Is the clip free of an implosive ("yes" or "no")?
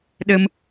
no